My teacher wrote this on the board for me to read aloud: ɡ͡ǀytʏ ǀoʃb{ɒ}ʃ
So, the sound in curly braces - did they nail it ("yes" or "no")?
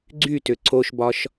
yes